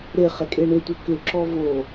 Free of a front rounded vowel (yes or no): no